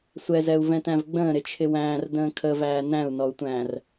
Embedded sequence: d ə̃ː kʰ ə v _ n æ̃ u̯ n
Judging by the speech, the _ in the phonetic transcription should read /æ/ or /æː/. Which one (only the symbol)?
æː